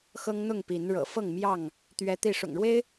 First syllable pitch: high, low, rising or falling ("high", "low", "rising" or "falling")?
high